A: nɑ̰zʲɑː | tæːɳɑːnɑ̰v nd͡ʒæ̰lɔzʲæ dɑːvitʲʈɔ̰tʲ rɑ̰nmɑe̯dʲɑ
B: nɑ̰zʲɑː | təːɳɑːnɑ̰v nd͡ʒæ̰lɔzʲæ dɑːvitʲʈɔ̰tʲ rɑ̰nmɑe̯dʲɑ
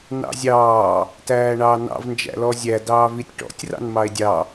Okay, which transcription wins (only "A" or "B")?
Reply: A